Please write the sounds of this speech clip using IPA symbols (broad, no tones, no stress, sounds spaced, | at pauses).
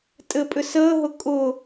tʼ ɘ pʼ ʏ s əː ɦ ʊ kʼ ʊ